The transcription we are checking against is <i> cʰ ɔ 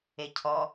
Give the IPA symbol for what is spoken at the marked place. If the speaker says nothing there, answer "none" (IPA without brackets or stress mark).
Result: e